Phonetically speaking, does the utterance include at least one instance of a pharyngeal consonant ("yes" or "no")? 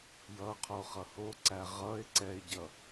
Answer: no